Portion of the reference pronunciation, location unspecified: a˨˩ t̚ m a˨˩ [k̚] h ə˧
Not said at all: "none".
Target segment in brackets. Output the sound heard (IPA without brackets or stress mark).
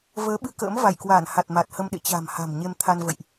t̚